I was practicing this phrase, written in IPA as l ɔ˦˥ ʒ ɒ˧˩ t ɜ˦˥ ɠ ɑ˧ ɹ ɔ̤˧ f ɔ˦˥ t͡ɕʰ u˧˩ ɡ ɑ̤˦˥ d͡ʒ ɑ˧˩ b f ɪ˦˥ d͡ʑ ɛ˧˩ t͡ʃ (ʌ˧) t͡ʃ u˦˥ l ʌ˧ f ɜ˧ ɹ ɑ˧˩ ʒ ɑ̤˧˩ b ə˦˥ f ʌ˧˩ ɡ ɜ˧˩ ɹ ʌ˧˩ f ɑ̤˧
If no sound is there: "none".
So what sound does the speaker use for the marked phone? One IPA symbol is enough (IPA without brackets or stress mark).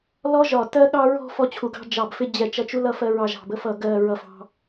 ʌ˧